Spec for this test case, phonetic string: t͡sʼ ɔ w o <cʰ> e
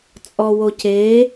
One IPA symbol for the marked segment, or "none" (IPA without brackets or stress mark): cʰ